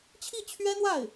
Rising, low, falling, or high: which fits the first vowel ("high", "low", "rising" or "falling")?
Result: falling